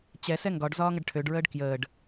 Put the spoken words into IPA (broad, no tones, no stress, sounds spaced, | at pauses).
t͡ɕ ɛ s ɛ ŋ ɡ ɒ ɖ z ɒː ŋ ə ɖ ʈʰ ø ɖ ɹ əː ɖ k j əː ɖ